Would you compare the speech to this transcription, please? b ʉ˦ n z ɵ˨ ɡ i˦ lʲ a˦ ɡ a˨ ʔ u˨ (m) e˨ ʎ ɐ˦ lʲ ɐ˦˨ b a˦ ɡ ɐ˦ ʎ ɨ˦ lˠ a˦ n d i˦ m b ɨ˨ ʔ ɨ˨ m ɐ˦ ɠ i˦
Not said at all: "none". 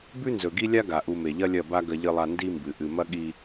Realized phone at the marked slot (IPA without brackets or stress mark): m